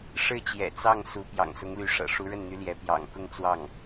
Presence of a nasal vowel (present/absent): absent